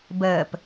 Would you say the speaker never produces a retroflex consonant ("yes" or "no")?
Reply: yes